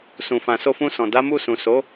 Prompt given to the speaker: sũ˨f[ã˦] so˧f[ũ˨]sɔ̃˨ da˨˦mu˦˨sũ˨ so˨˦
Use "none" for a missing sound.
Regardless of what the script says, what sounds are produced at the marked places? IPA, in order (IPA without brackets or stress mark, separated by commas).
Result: ã˨, ũ˧